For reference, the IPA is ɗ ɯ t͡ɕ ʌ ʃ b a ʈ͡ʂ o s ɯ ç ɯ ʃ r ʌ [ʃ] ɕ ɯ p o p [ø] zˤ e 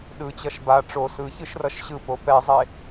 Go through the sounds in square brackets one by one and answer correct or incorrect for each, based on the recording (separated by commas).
correct, incorrect